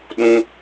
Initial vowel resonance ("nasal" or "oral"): nasal